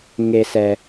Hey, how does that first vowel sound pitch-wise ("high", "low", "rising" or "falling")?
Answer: low